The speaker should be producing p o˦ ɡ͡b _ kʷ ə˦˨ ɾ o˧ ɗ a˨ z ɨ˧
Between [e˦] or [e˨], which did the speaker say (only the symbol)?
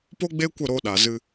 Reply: e˦